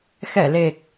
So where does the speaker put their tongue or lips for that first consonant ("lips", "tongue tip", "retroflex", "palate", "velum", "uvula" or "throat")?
velum